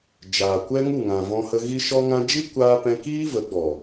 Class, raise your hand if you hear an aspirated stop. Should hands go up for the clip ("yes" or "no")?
no